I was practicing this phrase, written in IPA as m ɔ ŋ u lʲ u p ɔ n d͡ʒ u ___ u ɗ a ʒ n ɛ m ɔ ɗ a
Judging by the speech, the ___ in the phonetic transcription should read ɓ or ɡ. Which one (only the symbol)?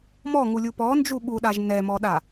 ɓ